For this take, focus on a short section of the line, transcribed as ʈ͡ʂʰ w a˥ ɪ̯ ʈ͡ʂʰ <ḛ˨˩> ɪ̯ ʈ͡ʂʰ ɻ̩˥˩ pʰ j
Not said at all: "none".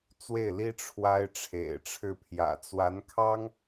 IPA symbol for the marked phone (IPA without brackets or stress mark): ḛ˨˩